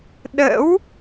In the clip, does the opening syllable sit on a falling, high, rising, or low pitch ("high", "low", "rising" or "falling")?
rising